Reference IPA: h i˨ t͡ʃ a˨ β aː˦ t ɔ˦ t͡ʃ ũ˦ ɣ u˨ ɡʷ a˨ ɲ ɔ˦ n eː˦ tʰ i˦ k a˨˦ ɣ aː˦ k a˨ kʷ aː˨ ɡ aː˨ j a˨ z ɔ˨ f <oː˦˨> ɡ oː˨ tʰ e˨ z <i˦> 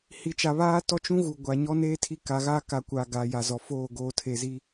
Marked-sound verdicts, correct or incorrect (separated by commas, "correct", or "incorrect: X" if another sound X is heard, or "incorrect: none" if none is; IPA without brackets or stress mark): correct, correct